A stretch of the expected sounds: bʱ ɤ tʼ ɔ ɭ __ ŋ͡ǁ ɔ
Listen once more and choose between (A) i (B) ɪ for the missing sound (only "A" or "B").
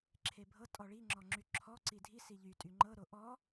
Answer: A